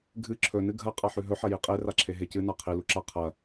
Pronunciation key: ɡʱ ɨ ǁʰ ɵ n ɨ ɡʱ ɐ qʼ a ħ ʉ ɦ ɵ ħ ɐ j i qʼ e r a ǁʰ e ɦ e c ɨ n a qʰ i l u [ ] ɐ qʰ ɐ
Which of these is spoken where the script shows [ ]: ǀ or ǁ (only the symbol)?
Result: ǁ